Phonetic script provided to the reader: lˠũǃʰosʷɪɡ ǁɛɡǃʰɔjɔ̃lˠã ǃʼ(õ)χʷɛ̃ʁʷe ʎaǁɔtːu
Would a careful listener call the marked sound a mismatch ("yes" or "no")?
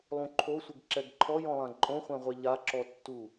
no